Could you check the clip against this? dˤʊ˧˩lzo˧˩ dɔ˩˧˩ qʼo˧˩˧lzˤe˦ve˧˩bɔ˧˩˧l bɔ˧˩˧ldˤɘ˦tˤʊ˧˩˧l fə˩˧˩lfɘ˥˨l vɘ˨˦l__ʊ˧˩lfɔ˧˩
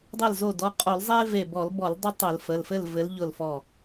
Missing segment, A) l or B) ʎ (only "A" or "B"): B